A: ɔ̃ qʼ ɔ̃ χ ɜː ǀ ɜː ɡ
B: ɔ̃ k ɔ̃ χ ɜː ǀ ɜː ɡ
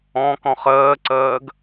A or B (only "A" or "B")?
B